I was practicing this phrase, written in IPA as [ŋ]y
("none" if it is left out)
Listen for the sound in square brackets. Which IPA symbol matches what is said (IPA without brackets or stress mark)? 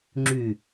ŋ͡ǁ